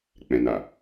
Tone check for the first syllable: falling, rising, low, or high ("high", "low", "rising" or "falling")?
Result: low